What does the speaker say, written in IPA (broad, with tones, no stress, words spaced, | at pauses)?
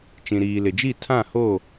t͡ʃĩ˨ɾiː˨lɪ˨d͡ʒi˦˨ tʰã˦˨ho˦˨